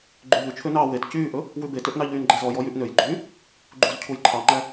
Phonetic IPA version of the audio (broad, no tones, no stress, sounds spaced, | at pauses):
ɡ͡ǃ y ʎ ʉ t͡ʃʰ ø n ɑː w e t c yː ʔ ɵ | w ʉ b e t ø ʔ n ɑ ʎ yː n ɡ͡ǃ æ z ɔ j ɔ j y ʔ n ø j ɡ͡ǃ y | ɡ͡ǃ u z cʰ u j ǃʰ ɑ ŋ͡ǃ æ